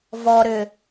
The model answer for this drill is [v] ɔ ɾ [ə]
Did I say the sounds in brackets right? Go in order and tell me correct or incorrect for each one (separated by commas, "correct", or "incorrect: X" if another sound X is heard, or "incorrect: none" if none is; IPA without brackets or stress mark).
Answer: correct, incorrect: ʏ